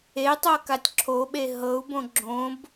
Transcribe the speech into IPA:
e tˤ ɤ k a tʲ ǁʰ o ɓ e ɦ ɤ u̯ b õ ɡ͡ǁ õ b

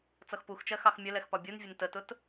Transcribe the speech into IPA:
t͡s ʌ x p u x t͡ʃ ɜ x ɑ x mʲ ə l ɛ x p ɒ bʲ u n vʲ ə n t ə t ʊ t

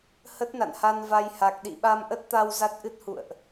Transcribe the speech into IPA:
h ə˦˥ t̚ n a̰˧˨ n h a˧ n v a˧ j h a˨˩ k̚ ɗ ḭ˧˨ ɓ a˧ m ʔ ə˦˥ t̚ t̪ a˧ w z a˦˥ t̚ ʔ ɨ˦˥ t̚ h ṵ˧˨ ə̯ ʔ

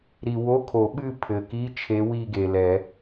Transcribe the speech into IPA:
ɾ i˨ w o˧˥˧ kʰ o˨˩˦ ɓ ɨ˥˧ pʰ ɘ˨ k i˧˥˧ t͡ʃʰ e˧˥ w i˥˧ ɡ e˨ l ɛ˨˩˦

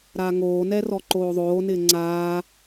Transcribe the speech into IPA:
ɾ aː ŋ oː n ɛ r ɔ ǃ oː ðˤ oː n ɪː ŋ͡ǀ aː

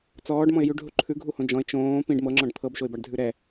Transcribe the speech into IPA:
t͡s ɔː ɖ m ɔ̃ ɪ̯ j ʉ ɖ ɦ u ǃʰ ʉ ɡʱ u h õ d͡ʒ ɔ̃ ɪ̯ t͡ʃ õː p ĩ ɖ m ɤ ŋ͡ǁ ɔ̃ ɖ t̪ʰ ɤ b ʃ o ɪ̯ b a ɖ dʱ ʉ ɾ ɛ

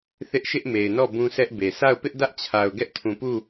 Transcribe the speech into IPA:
θ ɪ˦ ʔ ʃ ɪ˦ ʔ m e˨ ɪ̯ n ɔ˦˨ b ũ˦ sʰ ɛ˦ ʔ b e˨ s a˦˨ ʊ̯ p ɪ˦ ʔ d ä˦ ʔ t͡ɕʰ a˨ ʊ̯ ɡ ɛ˦ ʔ tʰ ũ˨ p u˦˨

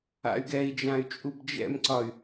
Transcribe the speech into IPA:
a̰ y̯ ɡ ɛ i̯ d͡ʒ ã y̯ t͡ʃʼ u b d͡ʒ ɛ̰ m ǀ ɒ y̯

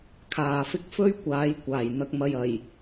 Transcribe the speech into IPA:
kʰ aː˨ f ɪ˥ k̚ f ɵ˥ ɥ kʷ aː˨˧ j kʷ aː˨˩ j n̪ ɐ˨ k̚ m ɐ˨ j ɐ˨˩ j

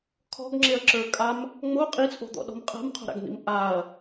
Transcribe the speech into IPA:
kʰ ɔ̤ ɡ ŋ͡ǁ e ɐ̯ ǁ ə˞ kʼ a m | ŋ͡m o qʼ i t͡sʼ o̤ d̪ ɔ̰ ɗ ɔ̤ m qʼ a̤ m qʰ o̤ ɾ a̰ ɡ n̪ ḭ m ʔ a ɐ̯

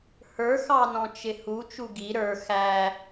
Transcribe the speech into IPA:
h ə˞ x ɑ n ɔ̃ t͡ʃ ɪ h u t͡ʃ u ɡ i ɾ ə˞ x æ

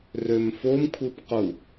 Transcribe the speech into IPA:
r ø m f o m kʷʰ ɯ p q u

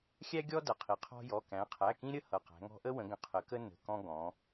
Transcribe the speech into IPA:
xʲ æ˦ ɡʲ ɔ˦ d ʌ˩˧˩ qʰ i˩˧ qʰ ɔ̤˦ j ɔ˩˧˩ k æ̃˩˧ qʰ æ˩˧˩ k ĩ˦ ɾʲ ə˦ h ʌ˩˧˩ q æ̤˩˧ ŋ ɔ̤˦ ʔ ə˦ w ə̃˩˧ ɡ ə̃˩˧˩ qʰ ə˩˧ k ə˦ n ə̤˩˧˩ k ɔ̃˦ ɡ ɔ̃˩˧

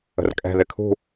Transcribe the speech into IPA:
ə̤ r kʼ ɛ̤ ð ɪ kʰ ṳ

